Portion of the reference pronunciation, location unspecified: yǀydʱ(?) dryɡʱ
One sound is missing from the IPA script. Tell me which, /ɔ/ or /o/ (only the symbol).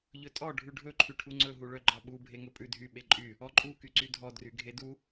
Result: ɔ